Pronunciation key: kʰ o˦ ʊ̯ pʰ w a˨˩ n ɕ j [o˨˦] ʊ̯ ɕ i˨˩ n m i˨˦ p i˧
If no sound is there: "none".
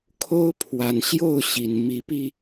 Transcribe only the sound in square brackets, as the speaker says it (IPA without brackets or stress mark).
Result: o˥˨